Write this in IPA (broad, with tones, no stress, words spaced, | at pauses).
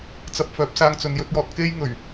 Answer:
t͡sɐ˧p̚fœː˨˥p̚ saː˧ŋt͡sɵ˨n jɵ˧t̚jɔː˨t̚ ke˥jŋɵ˨˩ɥ